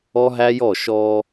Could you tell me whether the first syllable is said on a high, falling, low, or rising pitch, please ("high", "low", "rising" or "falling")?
high